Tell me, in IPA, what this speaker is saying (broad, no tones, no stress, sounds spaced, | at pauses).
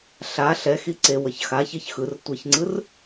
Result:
ɬ a ɬ ɛ x i ǀ e w ʌ ç x a ç e ç x ɯ r tʷ ʌ ç ŋ͡ǀ ɯ r